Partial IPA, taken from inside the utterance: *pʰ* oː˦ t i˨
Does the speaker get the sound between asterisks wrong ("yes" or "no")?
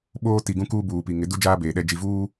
yes